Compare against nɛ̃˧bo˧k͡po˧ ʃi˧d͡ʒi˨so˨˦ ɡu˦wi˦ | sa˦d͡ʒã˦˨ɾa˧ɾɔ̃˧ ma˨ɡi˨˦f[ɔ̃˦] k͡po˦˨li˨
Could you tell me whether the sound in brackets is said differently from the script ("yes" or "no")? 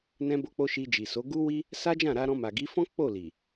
no